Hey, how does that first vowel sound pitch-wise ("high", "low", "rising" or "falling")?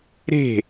falling